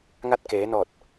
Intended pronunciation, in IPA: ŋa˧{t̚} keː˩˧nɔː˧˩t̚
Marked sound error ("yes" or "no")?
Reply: no